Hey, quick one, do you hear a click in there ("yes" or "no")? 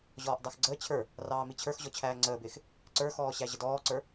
yes